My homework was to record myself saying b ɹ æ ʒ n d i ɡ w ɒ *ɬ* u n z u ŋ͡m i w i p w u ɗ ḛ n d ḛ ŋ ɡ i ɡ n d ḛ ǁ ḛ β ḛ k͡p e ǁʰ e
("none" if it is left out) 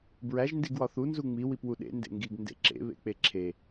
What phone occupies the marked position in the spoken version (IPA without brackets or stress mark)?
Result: θ